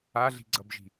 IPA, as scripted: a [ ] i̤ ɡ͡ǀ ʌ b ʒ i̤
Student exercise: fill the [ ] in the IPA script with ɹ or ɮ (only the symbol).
ɮ